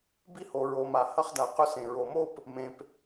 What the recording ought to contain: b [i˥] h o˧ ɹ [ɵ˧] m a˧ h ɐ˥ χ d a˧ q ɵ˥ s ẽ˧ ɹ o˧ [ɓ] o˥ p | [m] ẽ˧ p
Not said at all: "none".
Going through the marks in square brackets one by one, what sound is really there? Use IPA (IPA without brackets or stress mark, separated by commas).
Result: i˥, o˧, m, m